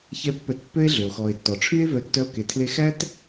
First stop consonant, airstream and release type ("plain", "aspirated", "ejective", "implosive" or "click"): plain